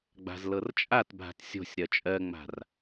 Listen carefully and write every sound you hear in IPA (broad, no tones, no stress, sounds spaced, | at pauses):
ɡ͡b a̤ z l ɤ r t͡ʃʼ a t bʱ a̤ t sʲ o̤ sʲ ɾ ɜ t͡ʃʼ ɜ ŋ͡m a̤ r